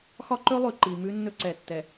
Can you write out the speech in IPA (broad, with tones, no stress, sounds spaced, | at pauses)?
x ɒ˦ ǃ ɵ˦ lˠ ʉ˨ ǃ i˨ m ʉ˦ nː ɵ˦ ǀ ɛ˨ tː ɛ˨